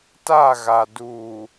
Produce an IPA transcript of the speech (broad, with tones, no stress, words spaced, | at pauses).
ta˦˨ɣa˨duː˨